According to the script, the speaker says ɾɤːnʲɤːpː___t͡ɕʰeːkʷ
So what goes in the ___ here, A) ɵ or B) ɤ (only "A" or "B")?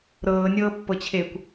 B